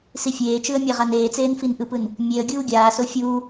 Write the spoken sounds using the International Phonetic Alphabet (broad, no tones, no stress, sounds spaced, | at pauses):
s i fʲ eː t͡ʃ ɯ ə̯ mʲ a ʁ a n eː t͡s eː n f i n ʔ ɯ p ɯ n | mʲ e ə̯ ɡʲ uː ɡʲ aː s o fʲ uː